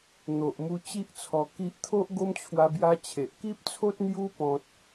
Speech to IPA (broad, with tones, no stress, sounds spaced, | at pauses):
n̪ o˨ ʔ m u˧ t͡ɕ i˦ ʔ t͡sʰ ɔ˧ k i˦ ʔ t̪ʰ o˦ ʔ ɡ o˦ m t͡ɕʰ w a˦ b j a˦ t͡ɕʰ e˨ ʔ k i˦ p̚ t͡sʰ o˦ t̚ n̪ j u˦ p ɔ̃˦ t̚